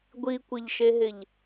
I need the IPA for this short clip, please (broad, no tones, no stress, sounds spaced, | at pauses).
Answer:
ɡʷ i kʷ ɪ ʎ ʃ e ɦ ɪ ʎ